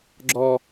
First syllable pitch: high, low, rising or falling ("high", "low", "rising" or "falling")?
high